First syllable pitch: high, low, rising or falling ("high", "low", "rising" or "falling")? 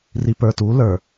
low